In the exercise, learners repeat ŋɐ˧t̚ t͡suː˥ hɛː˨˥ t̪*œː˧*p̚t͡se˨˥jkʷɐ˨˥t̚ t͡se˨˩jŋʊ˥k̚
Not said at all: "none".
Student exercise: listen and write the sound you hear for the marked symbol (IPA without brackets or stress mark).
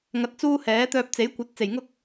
œː˧